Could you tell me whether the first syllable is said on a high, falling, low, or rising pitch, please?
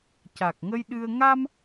low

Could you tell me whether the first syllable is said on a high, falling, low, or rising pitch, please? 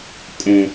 low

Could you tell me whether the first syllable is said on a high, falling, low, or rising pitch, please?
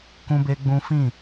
high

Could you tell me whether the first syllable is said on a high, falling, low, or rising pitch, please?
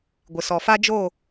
low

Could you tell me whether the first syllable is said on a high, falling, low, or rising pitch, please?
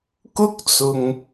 high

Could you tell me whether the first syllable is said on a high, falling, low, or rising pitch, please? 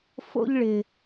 high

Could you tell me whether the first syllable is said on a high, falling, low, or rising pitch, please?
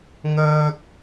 high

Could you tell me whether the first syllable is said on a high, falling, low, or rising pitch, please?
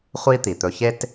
high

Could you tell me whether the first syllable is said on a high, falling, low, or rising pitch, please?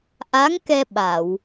rising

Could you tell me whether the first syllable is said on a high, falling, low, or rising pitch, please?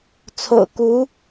low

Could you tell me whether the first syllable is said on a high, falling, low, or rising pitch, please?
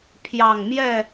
low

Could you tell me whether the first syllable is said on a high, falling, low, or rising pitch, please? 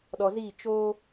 low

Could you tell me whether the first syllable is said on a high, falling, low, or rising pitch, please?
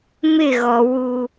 falling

